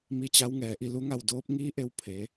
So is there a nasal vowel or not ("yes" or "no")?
no